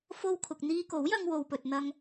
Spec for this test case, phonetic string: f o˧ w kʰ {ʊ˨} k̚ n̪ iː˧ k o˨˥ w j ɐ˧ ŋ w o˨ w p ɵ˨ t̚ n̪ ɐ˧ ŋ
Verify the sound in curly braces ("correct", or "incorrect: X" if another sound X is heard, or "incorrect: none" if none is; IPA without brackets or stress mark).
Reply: correct